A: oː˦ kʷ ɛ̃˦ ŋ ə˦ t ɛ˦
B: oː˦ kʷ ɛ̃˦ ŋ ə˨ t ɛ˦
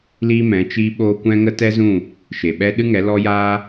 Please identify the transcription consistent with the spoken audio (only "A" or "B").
A